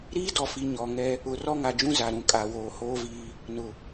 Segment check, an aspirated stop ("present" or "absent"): absent